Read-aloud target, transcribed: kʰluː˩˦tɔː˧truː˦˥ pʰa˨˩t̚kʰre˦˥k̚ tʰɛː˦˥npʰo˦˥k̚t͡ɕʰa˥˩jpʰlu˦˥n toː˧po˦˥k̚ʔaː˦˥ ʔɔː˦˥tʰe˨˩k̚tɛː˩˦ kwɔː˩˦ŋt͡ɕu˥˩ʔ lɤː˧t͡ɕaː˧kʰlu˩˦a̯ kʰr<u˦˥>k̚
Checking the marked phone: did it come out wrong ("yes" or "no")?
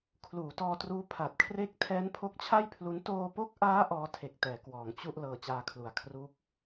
no